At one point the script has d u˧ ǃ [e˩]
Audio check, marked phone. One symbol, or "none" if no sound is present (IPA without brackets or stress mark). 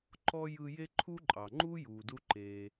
eː˩